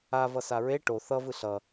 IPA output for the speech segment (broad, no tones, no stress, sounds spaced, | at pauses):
a v ʌ s a ɹ e ʈ o θ ʌ v ɯ ɬ ʌ